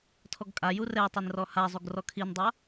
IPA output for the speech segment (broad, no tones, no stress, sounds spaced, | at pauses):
tʰ ɔ ɡ kʼ a j u r ɛ tˤ ɛ n r ɔ h a zˤ u ɡ r ɔ kʰ i n dˤ a